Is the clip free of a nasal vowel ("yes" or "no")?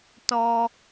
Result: yes